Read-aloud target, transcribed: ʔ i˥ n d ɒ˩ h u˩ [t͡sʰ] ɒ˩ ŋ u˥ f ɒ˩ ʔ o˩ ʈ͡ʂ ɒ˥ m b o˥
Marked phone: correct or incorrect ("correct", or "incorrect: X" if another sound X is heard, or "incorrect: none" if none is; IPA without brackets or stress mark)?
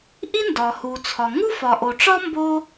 correct